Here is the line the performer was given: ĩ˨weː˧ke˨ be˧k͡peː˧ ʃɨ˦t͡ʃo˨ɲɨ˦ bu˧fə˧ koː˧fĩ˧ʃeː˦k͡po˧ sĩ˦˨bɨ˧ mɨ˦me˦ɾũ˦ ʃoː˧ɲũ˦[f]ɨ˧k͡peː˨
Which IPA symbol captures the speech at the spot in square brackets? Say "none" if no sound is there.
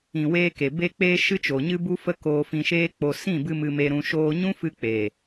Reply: f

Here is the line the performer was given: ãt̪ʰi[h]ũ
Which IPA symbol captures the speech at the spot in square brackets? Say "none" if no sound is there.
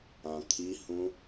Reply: h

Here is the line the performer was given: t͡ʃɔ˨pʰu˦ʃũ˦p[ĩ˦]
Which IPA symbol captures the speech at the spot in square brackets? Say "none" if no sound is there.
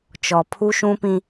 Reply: ĩ˦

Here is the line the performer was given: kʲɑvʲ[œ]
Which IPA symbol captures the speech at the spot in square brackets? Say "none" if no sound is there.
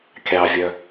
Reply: œ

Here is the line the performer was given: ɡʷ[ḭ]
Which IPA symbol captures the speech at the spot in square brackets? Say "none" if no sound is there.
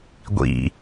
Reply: ḭ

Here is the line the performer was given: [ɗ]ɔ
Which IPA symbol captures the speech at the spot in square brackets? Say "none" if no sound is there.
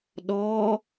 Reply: ɗ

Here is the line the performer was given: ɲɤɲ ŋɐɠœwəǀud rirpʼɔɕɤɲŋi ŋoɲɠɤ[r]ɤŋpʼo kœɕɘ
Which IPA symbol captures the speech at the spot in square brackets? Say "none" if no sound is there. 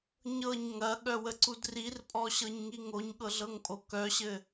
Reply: ɮ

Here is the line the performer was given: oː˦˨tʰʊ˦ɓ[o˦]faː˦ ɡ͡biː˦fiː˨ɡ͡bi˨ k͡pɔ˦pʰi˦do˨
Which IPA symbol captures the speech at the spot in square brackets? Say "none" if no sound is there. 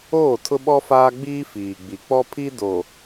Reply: ɔ˦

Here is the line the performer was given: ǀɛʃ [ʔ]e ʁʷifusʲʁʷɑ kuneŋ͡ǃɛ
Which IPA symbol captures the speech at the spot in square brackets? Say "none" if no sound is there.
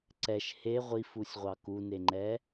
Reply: h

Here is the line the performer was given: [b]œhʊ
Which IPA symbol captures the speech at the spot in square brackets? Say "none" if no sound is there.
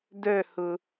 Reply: d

